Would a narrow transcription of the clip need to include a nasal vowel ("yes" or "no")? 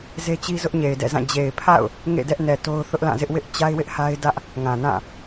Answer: yes